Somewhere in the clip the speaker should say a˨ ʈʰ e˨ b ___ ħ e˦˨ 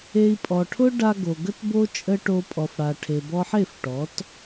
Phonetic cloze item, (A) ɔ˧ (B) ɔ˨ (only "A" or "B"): A